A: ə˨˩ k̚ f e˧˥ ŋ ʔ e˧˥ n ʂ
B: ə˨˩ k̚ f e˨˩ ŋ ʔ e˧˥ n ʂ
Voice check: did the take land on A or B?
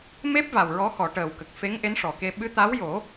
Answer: A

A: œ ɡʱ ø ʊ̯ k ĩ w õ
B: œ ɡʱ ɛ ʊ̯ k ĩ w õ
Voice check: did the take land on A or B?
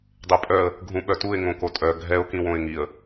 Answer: B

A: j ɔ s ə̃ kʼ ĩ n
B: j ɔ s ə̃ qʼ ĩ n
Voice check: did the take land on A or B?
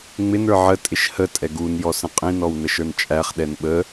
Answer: B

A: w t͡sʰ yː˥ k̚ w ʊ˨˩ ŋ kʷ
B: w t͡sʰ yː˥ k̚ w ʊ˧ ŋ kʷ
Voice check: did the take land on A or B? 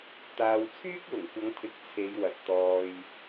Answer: A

